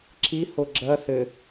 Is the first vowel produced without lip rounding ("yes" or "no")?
yes